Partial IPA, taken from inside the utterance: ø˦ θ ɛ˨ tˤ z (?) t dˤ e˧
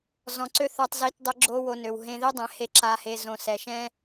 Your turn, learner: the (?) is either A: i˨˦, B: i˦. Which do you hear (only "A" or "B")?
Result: A